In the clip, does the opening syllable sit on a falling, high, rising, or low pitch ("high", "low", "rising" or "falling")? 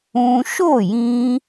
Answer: high